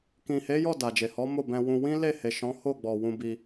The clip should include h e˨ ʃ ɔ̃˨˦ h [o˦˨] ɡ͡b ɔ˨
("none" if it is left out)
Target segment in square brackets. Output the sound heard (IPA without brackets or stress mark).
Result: o˦˨